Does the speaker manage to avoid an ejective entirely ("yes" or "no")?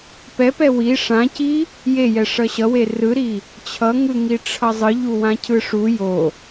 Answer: yes